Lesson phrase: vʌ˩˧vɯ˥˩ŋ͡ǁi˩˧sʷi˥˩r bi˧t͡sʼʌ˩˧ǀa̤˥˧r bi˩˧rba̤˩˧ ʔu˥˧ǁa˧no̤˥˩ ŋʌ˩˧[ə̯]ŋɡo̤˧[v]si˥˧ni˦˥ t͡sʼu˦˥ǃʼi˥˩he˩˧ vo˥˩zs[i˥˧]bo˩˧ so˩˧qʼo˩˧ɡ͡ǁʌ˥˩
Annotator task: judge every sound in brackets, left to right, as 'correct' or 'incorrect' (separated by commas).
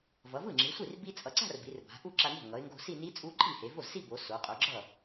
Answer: incorrect, incorrect, correct